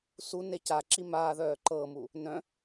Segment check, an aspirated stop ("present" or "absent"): absent